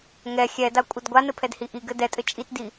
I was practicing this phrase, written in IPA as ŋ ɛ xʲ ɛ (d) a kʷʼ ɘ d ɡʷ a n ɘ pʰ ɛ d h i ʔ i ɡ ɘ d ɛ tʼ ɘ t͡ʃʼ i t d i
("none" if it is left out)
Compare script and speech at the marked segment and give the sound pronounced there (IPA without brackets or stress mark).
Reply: d